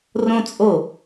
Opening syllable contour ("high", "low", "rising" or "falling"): high